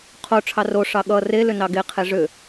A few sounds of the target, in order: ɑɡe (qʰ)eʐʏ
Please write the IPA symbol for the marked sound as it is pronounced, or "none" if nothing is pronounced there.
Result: qʰ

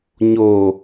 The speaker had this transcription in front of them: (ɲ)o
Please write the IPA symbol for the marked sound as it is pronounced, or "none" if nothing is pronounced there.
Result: ɲ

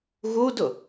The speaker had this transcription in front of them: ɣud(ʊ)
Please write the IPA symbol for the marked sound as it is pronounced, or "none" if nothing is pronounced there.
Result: ʊ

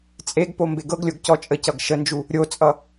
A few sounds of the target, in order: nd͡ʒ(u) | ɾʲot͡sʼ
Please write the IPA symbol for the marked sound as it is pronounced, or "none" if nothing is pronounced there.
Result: u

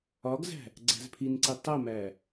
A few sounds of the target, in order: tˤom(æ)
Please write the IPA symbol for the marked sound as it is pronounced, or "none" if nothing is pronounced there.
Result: æ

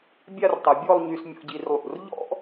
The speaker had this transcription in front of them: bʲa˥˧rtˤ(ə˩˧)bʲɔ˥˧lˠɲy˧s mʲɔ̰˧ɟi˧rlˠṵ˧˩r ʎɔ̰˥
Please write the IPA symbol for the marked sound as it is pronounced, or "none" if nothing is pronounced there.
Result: ə˩˧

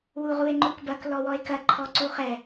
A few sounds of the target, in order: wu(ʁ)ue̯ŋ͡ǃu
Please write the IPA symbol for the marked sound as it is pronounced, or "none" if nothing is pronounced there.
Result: ʁ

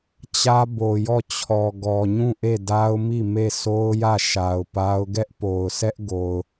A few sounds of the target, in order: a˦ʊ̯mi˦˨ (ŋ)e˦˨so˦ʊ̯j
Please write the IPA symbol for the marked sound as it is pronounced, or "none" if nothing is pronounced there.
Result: m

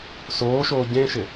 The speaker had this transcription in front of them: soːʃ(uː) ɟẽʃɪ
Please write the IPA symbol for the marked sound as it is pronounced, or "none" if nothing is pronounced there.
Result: oː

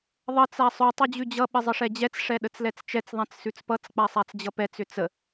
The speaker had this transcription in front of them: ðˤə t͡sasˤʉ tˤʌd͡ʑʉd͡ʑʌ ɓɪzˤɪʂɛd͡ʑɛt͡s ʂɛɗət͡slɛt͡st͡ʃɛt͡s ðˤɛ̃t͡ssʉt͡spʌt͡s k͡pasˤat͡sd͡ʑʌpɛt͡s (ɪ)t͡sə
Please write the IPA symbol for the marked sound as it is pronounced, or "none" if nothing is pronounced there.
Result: ʏ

